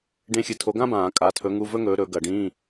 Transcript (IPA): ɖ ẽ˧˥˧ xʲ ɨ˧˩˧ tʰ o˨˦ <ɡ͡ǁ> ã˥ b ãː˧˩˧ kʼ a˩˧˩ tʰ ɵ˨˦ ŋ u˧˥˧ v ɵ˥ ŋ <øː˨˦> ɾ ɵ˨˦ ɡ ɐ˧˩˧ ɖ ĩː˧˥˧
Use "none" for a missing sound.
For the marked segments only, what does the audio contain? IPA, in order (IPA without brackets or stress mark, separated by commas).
ɡ, ɵː˨˦